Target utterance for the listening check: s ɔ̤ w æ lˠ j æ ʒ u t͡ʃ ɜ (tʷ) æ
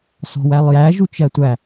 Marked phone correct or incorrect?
correct